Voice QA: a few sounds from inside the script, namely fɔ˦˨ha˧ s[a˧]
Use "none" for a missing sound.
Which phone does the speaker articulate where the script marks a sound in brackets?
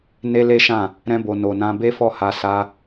a˧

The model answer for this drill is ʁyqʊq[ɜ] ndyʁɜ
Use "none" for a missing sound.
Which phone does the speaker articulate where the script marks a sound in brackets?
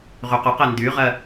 ɛ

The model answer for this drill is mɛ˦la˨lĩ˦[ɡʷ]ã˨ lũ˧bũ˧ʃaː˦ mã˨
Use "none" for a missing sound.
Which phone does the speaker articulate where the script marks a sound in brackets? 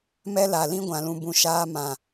ɡʷ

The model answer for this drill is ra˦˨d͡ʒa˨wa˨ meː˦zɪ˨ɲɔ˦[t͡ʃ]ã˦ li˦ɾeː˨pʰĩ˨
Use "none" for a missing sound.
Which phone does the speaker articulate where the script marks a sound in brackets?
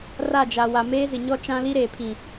t͡ʃ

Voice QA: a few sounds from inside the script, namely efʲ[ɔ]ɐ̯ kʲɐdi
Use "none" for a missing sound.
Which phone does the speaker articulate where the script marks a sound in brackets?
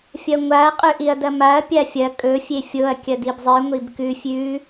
o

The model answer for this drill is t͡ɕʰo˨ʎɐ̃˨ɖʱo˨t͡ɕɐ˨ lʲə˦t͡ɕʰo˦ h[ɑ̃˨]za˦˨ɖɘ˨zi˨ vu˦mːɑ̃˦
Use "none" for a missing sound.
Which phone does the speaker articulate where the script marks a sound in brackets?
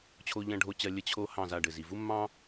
ɑ̃˦˨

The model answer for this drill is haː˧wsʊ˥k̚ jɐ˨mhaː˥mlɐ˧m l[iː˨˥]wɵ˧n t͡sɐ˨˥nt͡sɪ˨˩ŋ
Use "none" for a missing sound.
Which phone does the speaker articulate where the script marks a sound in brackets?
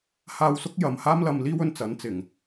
iː˥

